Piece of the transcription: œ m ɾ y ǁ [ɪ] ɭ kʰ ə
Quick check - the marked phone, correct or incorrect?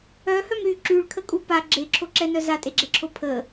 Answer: incorrect